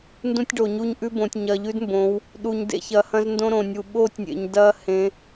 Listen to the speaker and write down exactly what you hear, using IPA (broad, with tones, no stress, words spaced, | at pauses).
ndũ˦tʲɖo˨ɲu˦ɲʔʉ˦ bõ˨tʲɲɐː˨ʎʉ˦dmbõ˨˦w | ɗu˨ɲdḛ˨˦çɐ˨ hɐ̃˦zndõ˦ɾõ˨nʲu˨ ɓoː˦tʲnʲḛ˨ɲdɐː˦ hẽ˨˦